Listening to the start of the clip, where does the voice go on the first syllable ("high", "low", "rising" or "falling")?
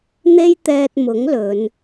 high